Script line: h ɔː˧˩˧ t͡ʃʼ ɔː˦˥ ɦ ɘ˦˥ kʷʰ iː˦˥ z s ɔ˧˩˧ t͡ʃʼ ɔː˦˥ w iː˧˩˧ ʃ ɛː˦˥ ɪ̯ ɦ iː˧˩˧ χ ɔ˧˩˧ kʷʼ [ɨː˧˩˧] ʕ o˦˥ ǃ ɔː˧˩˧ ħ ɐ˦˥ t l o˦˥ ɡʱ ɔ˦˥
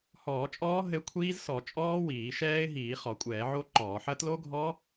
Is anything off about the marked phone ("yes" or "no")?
yes